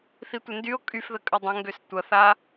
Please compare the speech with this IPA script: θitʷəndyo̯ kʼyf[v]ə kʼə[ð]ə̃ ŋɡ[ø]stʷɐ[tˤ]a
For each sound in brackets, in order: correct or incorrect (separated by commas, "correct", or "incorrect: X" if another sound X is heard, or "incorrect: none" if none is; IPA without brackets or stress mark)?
incorrect: ð, incorrect: dˤ, correct, incorrect: θ